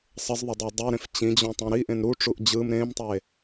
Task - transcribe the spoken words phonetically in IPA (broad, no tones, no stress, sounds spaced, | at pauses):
sˤ ə z ðˤ ə dˤ ɤ dˤ ø ɾ ẽ f t͡ɕ ĩ d͡ʑ õ tˤ õ ɾ i ʔ ẽ n ɾ u ʈ͡ʂ u ʔ d͡ʑ ɯ m ɾ ẽ m tˤ e